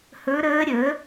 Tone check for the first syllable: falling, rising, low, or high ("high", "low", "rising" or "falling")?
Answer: rising